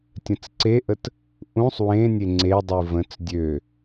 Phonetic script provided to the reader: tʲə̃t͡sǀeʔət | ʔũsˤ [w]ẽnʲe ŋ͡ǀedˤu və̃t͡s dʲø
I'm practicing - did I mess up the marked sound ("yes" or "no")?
no